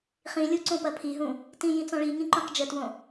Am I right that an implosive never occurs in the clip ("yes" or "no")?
yes